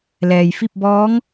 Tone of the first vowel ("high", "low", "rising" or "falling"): low